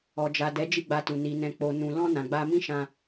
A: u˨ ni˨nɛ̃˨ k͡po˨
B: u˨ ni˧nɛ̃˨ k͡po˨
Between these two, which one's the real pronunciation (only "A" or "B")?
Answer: A